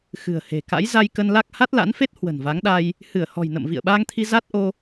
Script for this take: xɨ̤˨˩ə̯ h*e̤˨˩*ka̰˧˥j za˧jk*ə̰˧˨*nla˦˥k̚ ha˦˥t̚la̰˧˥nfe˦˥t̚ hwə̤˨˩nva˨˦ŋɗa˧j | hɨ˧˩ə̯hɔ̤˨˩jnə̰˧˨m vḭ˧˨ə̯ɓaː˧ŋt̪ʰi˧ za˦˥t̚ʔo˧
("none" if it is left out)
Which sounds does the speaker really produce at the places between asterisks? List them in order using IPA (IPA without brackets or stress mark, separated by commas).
e̤˨˩, ə˧